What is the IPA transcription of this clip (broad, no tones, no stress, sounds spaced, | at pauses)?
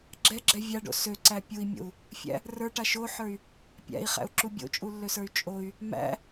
ɡ͡ǁ ɛ ɡ͡ǁ ɛ vʲ a ɖ o̰ s ø ǀ æ pʲ u i̯ mʲ o̰ u̯ | fʲ æ̰ | r ə˞ ʈ a ʃ o ħ ə˞ y̯ | pʲ æ̰ i̯ χ æ̰ u̯ ǁ u bʲ o̰ t͡ʃʼ u lː ø s ə˞ y̯ t͡ʃʼ o y̯ | m æ̰